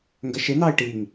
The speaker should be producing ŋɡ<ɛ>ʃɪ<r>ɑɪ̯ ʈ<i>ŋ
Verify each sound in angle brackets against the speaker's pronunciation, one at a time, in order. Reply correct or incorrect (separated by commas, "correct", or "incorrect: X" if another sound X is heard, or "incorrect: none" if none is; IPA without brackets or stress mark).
incorrect: ə, incorrect: n, correct